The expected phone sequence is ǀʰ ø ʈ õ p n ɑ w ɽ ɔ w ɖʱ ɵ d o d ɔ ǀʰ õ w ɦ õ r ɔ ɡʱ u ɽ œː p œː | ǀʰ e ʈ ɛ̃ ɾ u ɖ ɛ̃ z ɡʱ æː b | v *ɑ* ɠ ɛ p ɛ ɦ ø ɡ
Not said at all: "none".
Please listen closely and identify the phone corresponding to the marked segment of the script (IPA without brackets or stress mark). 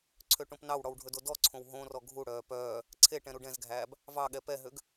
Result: ɑ